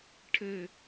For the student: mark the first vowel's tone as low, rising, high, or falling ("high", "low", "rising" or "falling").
falling